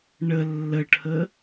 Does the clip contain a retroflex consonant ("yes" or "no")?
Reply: yes